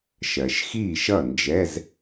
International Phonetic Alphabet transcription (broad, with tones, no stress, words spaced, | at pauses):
ʃɜ˩ʃxiː˧˩ʃʌ˧˩ nd͡ʒɛ˩˧˩z